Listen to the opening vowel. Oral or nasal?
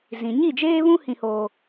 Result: nasal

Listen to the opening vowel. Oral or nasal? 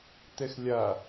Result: oral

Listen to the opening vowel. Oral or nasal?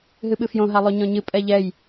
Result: oral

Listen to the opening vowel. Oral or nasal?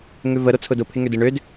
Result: oral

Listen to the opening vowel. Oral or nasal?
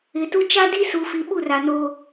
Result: oral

